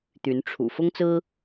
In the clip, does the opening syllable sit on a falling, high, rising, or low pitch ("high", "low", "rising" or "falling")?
rising